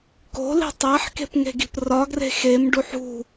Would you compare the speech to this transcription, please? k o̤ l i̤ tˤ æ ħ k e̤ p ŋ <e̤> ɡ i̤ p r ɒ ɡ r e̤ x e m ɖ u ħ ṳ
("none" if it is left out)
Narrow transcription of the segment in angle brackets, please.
e̤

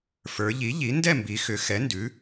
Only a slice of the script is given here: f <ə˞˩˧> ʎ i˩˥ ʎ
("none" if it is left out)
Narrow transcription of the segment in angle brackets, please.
ə˞˩˧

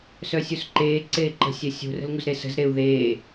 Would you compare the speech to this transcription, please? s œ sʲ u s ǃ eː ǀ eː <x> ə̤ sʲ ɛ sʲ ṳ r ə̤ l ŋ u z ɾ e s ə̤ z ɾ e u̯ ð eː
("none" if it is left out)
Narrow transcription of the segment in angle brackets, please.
ǃ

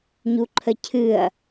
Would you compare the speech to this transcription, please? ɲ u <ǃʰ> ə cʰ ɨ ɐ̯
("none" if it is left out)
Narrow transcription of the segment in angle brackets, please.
ǃʰ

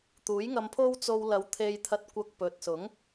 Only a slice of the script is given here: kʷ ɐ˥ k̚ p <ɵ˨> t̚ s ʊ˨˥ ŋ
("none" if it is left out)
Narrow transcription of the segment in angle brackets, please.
ɵ˨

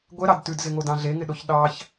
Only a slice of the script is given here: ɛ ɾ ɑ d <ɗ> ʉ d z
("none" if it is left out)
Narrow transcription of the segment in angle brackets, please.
t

